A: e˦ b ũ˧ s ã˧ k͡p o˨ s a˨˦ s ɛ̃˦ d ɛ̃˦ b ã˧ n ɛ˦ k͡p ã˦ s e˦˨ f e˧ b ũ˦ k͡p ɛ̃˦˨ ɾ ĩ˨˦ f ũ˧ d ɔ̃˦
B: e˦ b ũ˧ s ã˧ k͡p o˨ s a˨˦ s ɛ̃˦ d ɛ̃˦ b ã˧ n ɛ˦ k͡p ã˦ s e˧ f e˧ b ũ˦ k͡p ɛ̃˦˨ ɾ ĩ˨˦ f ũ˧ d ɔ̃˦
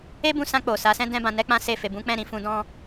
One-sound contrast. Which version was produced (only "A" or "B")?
A